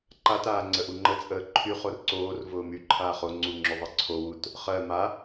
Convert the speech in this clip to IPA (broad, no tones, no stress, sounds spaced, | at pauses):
ǃ a t aː ŋ͡ǀ ə ʔ u ŋ͡ǃ ə t͡sʼ əː ǃʰ y χ o r ǀ oː r v ʊː m y ǃʰ aː χ o ŋ͡ǀ u ŋ͡ǁ ʊ ðˤ ɜ ǀʰ o w u t | χ ɜ m a